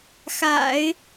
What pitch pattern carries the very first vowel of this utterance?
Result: low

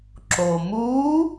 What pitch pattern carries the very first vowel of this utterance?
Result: low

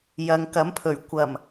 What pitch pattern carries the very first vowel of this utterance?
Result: low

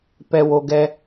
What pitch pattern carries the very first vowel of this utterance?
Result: low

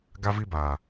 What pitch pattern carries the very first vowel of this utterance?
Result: high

